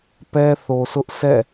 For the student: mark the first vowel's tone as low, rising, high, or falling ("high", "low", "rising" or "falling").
high